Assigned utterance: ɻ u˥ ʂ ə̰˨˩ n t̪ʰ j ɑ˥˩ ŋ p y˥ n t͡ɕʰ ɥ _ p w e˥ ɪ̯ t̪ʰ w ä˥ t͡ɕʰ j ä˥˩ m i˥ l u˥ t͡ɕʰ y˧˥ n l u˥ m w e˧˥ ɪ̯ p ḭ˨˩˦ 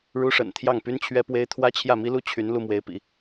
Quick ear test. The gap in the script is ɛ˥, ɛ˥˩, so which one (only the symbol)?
ɛ˥